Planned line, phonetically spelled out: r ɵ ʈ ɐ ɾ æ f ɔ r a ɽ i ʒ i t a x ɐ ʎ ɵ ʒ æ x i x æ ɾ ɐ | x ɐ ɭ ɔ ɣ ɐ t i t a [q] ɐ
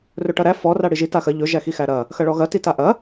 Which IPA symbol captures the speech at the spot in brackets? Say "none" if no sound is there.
ʔ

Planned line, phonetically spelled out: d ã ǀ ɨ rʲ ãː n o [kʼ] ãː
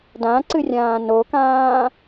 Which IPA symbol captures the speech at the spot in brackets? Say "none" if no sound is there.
k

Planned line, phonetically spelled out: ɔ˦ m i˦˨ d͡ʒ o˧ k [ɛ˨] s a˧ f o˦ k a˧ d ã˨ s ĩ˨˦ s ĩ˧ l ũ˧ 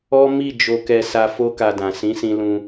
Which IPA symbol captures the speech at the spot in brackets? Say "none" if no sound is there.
ɛ˧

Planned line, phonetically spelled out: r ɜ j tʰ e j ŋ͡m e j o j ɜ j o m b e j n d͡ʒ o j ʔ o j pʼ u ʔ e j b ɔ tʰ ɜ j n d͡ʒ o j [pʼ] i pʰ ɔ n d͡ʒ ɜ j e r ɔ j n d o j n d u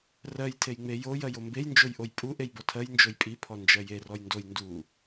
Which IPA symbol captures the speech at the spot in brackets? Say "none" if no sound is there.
pʼ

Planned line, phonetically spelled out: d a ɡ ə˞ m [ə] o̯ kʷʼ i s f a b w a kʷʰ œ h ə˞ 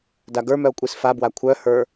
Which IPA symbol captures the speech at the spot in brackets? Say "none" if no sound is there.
œ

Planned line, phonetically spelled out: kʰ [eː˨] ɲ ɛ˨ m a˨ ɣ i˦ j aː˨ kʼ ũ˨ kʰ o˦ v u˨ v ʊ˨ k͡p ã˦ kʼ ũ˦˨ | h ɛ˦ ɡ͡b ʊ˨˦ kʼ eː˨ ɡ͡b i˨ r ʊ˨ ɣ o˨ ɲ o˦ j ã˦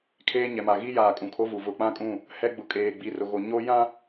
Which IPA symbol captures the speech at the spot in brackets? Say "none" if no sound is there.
eː˦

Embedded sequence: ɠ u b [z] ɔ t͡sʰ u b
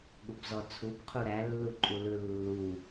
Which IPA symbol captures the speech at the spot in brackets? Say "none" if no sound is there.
z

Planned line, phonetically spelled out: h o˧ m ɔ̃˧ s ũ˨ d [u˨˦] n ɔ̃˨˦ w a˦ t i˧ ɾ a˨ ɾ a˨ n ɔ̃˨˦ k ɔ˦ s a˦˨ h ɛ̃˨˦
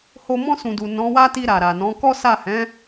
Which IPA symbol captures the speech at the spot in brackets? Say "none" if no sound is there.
u˨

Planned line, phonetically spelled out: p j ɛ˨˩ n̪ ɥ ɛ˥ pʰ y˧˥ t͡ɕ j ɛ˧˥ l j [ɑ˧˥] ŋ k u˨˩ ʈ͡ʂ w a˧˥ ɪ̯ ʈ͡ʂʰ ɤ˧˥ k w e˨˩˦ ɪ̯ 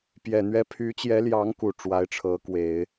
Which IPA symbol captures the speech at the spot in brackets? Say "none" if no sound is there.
ɑ˧˥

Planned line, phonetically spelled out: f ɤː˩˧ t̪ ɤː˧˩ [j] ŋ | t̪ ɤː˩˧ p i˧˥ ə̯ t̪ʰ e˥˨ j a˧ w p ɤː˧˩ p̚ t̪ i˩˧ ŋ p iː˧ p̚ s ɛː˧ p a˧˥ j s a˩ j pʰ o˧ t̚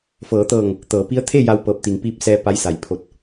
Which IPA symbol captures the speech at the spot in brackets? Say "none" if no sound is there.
none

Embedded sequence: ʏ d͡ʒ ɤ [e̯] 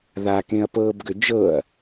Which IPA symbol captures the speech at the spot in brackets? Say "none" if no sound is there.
ɐ̯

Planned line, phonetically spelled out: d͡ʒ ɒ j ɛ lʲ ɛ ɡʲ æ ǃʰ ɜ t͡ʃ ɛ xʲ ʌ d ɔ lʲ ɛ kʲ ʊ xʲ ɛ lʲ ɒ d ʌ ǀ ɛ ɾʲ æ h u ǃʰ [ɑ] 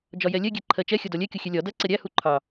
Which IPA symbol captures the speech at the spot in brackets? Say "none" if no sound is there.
ɑ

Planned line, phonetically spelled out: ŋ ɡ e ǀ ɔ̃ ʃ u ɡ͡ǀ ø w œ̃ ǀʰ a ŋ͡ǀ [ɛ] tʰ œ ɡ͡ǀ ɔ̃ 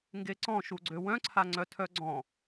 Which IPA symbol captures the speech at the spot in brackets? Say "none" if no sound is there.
œ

